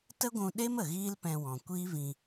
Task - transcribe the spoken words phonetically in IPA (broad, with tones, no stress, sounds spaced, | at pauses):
t ə˦ ɡʷ ũ˧ ɗ e˦ m ə˨ ɣ iː˦ l p ɛ̃˧ w ɔ̃˨ kʷ iː˦ v ĩ˧